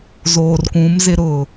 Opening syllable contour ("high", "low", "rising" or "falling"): low